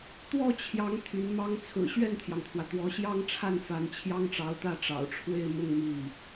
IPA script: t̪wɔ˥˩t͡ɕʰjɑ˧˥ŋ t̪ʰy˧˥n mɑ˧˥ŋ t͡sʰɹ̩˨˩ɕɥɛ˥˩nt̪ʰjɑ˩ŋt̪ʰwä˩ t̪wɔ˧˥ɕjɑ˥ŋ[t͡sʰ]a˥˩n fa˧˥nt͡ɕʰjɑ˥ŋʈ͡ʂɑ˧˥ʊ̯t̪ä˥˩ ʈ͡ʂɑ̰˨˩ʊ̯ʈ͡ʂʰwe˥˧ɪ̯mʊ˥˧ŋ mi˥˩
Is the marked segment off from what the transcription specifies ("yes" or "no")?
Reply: yes